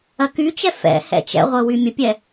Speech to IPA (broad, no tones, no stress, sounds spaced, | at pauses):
ɐ k y t͡ʃ ɛ f ɛ̰ h ɛ̰ t͡ʃ ɛ̰ ʁʷ ə w y mʲ ə pʲ ɛ